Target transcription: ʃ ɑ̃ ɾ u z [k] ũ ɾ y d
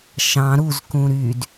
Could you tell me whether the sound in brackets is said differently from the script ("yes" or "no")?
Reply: no